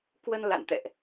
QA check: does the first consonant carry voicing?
no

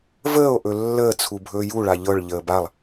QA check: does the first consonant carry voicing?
yes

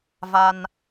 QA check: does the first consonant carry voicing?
yes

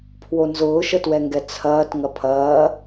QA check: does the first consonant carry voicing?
no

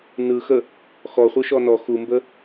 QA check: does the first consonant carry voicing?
yes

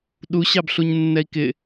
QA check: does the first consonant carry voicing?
yes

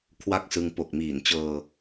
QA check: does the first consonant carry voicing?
no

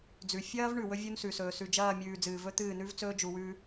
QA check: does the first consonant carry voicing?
yes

